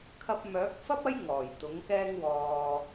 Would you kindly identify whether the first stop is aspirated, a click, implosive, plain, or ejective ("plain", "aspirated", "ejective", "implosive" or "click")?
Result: aspirated